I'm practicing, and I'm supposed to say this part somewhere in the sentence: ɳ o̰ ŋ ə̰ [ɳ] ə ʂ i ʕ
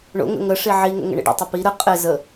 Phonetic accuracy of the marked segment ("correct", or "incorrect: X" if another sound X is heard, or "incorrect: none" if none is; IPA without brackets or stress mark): incorrect: ŋ